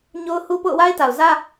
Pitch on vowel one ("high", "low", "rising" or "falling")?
high